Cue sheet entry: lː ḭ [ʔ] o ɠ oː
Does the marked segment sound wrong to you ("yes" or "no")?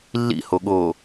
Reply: yes